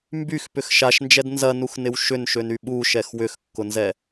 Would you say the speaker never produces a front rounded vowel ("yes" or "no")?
no